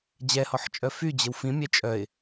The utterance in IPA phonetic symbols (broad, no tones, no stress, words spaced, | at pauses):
d͡ʑɛhɔħt͡ʃʼœ fyd͡ʑəw fĩmʲɛ t͡ʃʼœɪ̯